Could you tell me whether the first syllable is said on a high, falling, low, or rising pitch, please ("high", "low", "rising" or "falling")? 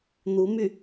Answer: rising